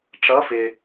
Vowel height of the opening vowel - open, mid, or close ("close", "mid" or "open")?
mid